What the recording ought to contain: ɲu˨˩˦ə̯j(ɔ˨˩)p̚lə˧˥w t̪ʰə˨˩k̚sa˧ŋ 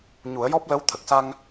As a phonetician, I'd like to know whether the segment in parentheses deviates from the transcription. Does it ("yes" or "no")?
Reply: yes